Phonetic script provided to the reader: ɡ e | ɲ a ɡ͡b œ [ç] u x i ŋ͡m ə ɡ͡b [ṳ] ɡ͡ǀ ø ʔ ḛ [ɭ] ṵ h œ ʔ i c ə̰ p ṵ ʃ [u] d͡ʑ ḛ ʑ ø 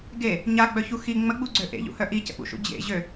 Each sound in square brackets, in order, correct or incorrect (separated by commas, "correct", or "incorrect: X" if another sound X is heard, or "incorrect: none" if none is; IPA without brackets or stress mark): correct, incorrect: u, incorrect: ʎ, incorrect: ṵ